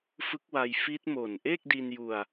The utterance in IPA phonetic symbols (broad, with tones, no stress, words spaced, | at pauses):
fɯ˦˥k̚wa˧jfi˦˥t̚ mo˨˩nʔe˥˩k̚di˧nju˧a̯